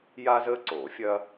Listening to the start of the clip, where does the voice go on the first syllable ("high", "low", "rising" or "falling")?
high